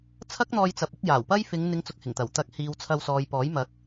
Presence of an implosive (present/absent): absent